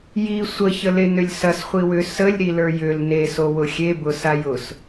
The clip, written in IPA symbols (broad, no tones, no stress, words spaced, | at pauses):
ji sʷə çəlenʏlʲsɐs χʷiwʏ səlʲ ɾilə˞jʏl ne sowʊxʲe bʊsajʊs